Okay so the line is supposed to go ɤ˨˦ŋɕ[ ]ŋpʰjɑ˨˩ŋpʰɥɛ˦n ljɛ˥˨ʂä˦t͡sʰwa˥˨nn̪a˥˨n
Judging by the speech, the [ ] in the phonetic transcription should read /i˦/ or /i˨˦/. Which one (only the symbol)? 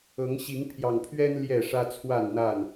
i˨˦